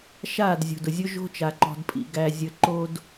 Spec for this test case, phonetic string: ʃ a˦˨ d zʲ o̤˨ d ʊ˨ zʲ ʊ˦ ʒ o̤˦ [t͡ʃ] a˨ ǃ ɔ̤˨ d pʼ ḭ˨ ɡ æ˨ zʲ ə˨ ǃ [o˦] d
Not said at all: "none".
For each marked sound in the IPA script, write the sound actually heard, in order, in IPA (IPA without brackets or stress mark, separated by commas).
t͡ʃ, o˦